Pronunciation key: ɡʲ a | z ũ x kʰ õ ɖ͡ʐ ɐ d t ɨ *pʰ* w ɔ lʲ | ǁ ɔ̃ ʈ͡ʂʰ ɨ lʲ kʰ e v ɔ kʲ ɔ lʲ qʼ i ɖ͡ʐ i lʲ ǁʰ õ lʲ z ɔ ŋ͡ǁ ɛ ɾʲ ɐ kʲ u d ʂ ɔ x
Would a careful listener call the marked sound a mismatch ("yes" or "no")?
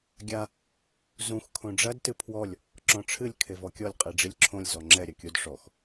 no